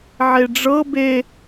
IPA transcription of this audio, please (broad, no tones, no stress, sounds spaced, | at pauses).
ʕ e ɖ͡ʐ ɤ b e